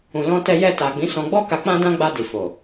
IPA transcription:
ũ˨ l ɔ̃˧ t ɛ˧ j ɛ˧ t a˨ ɡ͡b ĩ˨˦ s ɔ̃˧ ɡ͡b ɔ˦ k a˧ k͡p ã˦ d ã˦ ɡ͡b a˧ d i˨ f o˨

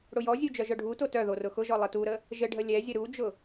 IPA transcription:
ɽ ʊ j ɔ zʲ u d͡ʒ œ ʒ œ ɖʱ u t o t œ ð o r ʊ x ʊ ʒ ɔ lˠ ɘ t u ɾ ə | ʒ ɘ ɖʱ ə lʲ ɛ zʲ ə ɾ u d͡ʒ ʊ

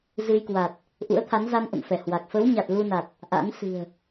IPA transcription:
z ɨ˧ j k w a˨˩ t̚ | ʔ ṵ˧˥ ə̯ t̪ʰ a˨˦ n z a˧ n ʔ ə̰˧˨ m f ɛ˧˩ h w a˨˩ k̚ f ə˨˦ w ɲ a˨˩ t̚ l u˧ n a˨˩ t̚ | ʔ a̰˧˥ n s ɨ̤˨˩ ə̯

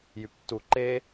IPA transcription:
j y p tː u ǃ e

